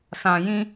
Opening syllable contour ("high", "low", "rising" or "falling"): low